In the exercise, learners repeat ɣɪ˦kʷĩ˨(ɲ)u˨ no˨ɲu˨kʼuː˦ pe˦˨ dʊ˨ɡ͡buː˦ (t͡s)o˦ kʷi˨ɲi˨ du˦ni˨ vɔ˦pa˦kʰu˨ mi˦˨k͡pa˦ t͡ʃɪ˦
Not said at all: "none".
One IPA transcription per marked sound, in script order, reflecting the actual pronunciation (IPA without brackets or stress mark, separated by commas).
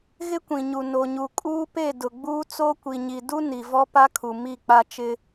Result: ɲ, t͡s